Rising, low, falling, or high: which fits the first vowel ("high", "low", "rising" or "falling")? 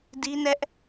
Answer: high